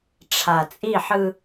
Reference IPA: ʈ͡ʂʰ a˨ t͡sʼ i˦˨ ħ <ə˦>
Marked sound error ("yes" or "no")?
yes